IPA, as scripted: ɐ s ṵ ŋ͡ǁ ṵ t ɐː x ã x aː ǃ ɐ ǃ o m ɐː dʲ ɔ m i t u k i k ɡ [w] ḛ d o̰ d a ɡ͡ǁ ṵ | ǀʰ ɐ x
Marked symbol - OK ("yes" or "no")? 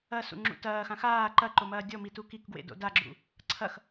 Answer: yes